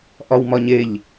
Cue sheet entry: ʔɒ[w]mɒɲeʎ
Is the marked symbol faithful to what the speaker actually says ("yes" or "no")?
yes